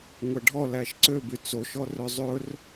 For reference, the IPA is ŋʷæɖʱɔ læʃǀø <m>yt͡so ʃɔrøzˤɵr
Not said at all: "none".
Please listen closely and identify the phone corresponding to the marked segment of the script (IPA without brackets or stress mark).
b